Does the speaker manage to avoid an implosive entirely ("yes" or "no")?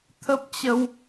yes